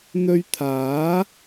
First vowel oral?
yes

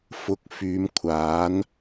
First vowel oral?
yes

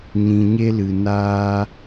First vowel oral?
no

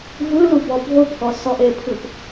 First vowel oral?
yes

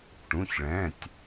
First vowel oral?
no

